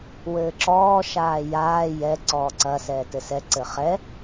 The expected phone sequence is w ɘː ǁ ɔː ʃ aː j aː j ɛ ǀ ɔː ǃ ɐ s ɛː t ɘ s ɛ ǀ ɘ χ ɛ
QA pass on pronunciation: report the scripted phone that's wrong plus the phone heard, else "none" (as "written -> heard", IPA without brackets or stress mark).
ǃ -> ǀ